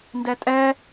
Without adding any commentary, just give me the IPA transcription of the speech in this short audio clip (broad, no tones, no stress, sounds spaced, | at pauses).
n d ɛ tʼ ɛ